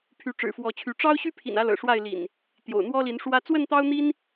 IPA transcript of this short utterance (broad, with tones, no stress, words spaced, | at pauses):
pʰy˨˦ʈ͡ʂɻ̩˨˩fwɔ˨˦t͡ɕʰy˨˦ ʈ͡ʂɑ˦ʊ̯ ɕy˦pʰḭ˨˩nä˨˦ lɤ̰˨˩ʂwa˥˨ɪ̯lḭ˨˩n | t̪jo̰˨˩ʊ̯n̪wɔ˦ li˨˦nʂwä˦ t͡swə˥˨nt̪ɑ˦ʊ̯n̪i˦n